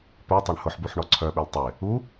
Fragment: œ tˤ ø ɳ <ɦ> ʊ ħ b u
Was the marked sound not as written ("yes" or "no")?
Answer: yes